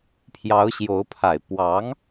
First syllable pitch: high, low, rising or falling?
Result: rising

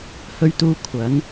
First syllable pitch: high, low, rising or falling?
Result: low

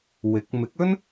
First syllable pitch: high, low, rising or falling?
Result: rising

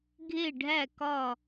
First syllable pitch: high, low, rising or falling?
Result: falling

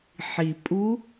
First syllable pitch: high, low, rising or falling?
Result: low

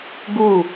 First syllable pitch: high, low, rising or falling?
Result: falling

